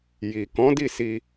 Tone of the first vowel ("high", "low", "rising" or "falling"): low